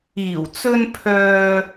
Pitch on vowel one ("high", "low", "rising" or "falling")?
low